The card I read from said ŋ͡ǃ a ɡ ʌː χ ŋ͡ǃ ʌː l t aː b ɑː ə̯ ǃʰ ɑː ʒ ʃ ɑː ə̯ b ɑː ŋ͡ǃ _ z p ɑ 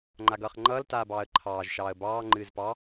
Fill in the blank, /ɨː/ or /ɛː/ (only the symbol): ɨː